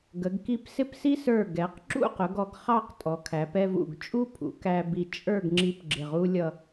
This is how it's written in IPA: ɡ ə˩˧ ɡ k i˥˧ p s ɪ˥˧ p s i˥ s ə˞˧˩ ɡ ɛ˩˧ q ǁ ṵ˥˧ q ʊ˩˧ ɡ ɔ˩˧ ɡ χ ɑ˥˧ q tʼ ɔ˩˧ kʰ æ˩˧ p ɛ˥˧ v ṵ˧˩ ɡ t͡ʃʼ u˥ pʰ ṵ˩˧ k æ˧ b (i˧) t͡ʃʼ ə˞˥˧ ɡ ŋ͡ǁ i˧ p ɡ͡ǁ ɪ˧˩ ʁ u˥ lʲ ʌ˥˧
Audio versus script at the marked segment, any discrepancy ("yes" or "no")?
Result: yes